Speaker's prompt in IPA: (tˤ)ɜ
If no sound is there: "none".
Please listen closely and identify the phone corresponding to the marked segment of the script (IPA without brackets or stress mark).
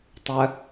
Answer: tˤ